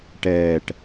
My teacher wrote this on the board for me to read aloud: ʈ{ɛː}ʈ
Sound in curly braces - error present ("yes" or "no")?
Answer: no